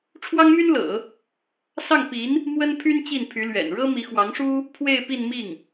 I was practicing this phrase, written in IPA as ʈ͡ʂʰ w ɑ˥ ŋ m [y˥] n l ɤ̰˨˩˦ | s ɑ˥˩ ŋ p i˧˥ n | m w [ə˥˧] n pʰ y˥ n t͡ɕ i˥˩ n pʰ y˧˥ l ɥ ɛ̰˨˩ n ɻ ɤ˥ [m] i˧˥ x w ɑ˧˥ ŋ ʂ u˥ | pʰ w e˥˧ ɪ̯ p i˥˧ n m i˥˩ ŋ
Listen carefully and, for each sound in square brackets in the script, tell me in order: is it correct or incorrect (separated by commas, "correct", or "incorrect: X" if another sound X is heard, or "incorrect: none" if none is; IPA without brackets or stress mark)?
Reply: correct, incorrect: ə˥, correct